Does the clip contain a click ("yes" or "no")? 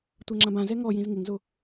yes